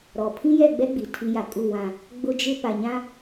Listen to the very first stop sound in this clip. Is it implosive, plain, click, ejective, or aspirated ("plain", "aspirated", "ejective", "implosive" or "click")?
aspirated